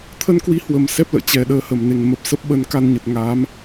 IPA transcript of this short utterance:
t̪ʰə˧nkwi˨˦ hwə˨˩msɛ˦˥p̚ lə̰ː˧˨ t͡ɕɛ˨˩ ɗəː˧hə˨˩mne˨˩ŋ mə˨˩p̚sə˦˥p̚ɓə˧n ka˧nɲə˨˩t̚ ŋa˨˦m

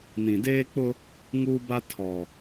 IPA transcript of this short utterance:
nĩ˨deː˦k͡pʊ˦ | ŋuː˦ba˦ tʰɔ˨

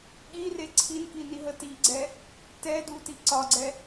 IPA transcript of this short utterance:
ɠire ǀʰinkiniɦə tiɡ͡ǀɛ | tɛduti ǀɒɡ͡ǀɛ

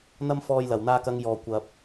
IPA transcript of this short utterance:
n̪ɐ˧mfɔː˨j lɐ˨˩wn̪aː˧kɐ˨˧ŋ jɔː˨ kʷɐ˨p̚

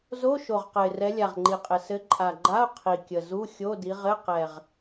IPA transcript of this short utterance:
zo˧˥˧ ʃo˨˩ʁqɘ˨˩ɪ̯ rɛ˨˦lʲa˨˩ʁŋ͡ǃi˨˩qʼɘ˨˩ sɘ˨˦ ǃʼa˨˩ɡ͡ǃa˧˥˧ʊ̯ qʰi˨˩kʲə˨˩ zu˧˥˧xʲo˧˥˧di˨˦ ʁɘ˧˥˧ qɛ˨˩ʁ

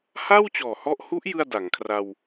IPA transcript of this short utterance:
ha˥˩wt͡ɕɔː˨˩hɔ˦˥ʔhu˦˥ʔ jɯ˥˩a̯da˩˦ŋkʰra˧w

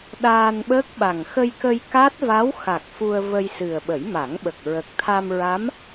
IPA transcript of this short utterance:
ɗaː˧nɓəː˦˥k̚ɓa˨˩ŋ xə˧jkə˧j ka˦˥t̚va˧˥w xa˨˩k̚ fu˧ə̯və˧jsɨ˨˩ə̯ ɓə˨˩˦jma˨˩˦ŋɓə˨˩k̚ ɹə˨˩k̚t̪ʰa˧mɹa˧˥m

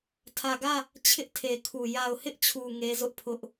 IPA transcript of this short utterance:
tʰä˨ɡä˦˨ | t͡ɕʰɪ˦ʔtʰe˨kʰu˨ ja˨ʊ̯hɪ˦ʔt͡ɕʰu˨ ŋe˦zʊ˦ʔpʰʊ˦ʔ

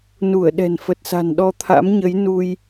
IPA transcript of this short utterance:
nu˧˩ə̯ɗɛ̤˨˩n fə˨˩t̚sa̤˨˩n ɗɔ˧t̪ʰa̰˧˥mɲə˨˦j nu˧j

